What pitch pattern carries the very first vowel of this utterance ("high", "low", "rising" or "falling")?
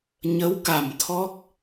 rising